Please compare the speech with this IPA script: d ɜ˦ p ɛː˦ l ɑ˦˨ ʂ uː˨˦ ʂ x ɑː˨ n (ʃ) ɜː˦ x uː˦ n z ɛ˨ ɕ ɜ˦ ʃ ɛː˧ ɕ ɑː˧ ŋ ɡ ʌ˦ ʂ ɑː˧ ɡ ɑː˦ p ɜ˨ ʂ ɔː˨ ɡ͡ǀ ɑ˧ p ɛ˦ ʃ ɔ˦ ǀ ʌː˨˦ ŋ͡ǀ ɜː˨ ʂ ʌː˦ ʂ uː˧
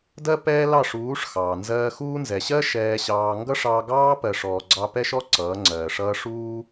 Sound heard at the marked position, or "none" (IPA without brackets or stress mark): z